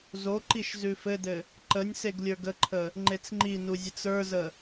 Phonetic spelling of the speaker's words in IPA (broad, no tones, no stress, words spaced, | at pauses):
zoǃiʃ zʉfɘdɘ | ǃənʲ seɡlʲə˞ɡəǃʰə | ŋ͡ǃet͡sŋ͡ǃinu zʲət͡sə˞zə